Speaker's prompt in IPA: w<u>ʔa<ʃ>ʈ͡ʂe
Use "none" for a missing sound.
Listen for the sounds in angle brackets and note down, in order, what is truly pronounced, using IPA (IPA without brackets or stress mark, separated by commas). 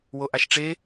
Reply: o, ʃ